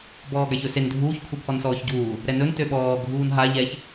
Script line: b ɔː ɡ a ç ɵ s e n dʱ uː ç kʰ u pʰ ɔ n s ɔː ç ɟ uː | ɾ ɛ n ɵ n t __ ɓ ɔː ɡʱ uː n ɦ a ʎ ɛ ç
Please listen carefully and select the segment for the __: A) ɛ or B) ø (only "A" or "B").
B